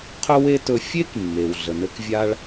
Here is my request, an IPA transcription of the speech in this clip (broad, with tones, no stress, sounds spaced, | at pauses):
qʰ ɵ˥ w e˥ t ɵ˧ fʲ e˥ k mː e˩ w ɮ ə˩ n ɘ˧ k vʲ a˧ ɭ